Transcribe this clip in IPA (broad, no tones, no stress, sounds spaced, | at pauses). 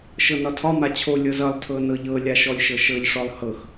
ʃ ɤ n ɒ tʰ ɒ m a t͡ɕʰ o lʲ ɤ z ʌ lˠ tʰ ɤ n ɤ ʎ ɤ lʲ a ʃ ɔ lʲ ʃ ɤ ʃ ɤ ʎ ʂ ɔ lˠ h ɤ x